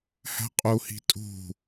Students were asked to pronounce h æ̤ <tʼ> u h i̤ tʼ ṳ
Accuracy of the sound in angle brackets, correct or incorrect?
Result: incorrect